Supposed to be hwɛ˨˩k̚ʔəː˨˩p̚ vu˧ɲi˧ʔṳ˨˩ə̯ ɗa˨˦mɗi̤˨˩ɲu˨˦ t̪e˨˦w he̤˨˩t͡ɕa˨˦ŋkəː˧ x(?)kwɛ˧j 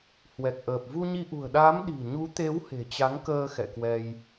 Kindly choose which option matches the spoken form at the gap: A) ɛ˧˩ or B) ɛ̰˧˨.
B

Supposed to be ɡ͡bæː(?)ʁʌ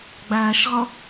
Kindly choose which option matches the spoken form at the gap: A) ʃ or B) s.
A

